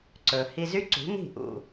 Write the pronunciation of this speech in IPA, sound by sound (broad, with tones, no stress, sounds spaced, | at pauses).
ǀ ɵ˨ h i˧ z y˦ ǀ ṳ˨˦ n̪ i̤˦˨ ʔ ṵ˧